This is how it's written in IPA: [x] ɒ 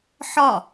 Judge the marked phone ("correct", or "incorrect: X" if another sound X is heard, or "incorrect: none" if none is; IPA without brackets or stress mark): incorrect: ħ